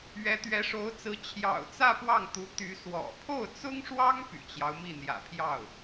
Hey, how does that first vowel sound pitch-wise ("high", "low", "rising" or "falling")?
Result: rising